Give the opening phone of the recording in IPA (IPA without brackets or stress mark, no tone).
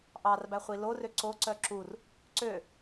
ʔ